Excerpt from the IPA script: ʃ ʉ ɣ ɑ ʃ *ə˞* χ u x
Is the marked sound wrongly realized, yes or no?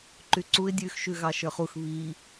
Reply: no